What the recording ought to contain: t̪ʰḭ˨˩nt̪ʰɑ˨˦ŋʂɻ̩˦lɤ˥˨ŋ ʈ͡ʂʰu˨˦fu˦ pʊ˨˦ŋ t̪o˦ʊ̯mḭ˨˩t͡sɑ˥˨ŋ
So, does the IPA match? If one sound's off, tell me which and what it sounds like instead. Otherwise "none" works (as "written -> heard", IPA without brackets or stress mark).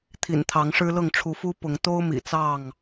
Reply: none